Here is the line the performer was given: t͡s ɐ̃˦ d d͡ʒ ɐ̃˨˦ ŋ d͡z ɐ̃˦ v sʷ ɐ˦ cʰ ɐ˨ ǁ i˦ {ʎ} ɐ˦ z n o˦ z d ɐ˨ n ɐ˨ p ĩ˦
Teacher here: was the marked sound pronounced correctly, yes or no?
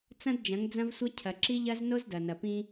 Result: yes